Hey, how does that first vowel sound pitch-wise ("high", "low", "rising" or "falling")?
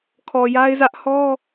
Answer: low